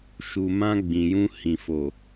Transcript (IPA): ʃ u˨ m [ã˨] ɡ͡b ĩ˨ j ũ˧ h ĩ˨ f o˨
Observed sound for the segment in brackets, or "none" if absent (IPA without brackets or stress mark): ã˧